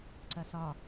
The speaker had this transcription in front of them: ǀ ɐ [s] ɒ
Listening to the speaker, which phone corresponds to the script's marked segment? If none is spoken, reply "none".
s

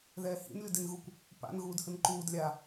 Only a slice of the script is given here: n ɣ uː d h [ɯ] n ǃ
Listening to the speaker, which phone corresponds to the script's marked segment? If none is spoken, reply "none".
ɯ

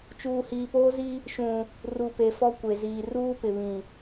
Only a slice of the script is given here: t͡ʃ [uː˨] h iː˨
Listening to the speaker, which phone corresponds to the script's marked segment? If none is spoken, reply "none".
uː˨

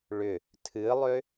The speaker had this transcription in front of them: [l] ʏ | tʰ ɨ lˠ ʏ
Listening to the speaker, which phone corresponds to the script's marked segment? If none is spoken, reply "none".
ɭ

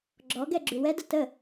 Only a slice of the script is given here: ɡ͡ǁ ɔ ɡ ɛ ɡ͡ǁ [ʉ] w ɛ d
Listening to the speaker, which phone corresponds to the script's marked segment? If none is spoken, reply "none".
ʉ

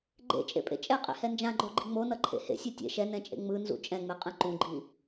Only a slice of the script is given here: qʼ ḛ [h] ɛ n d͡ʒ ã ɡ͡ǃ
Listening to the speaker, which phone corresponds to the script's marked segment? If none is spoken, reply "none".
h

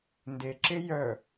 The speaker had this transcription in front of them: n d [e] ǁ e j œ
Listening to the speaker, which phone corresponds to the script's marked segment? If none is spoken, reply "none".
e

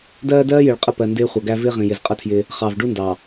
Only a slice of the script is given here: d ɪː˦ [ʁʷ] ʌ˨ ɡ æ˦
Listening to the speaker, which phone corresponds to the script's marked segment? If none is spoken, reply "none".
χʷ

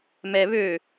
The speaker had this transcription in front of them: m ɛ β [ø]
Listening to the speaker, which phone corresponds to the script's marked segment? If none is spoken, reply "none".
ø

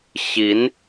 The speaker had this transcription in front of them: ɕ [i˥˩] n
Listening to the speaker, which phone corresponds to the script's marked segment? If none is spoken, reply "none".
i˧˥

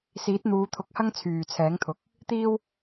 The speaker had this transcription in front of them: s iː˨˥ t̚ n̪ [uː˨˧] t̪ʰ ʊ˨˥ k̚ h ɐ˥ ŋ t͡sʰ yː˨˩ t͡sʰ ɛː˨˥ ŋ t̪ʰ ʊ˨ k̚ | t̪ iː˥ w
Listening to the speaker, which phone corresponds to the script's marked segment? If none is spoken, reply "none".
uː˨˧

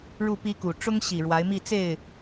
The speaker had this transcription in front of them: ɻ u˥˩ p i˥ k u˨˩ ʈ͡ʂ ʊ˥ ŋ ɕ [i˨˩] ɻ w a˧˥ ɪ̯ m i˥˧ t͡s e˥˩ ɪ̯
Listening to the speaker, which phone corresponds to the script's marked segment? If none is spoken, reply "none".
i˨˩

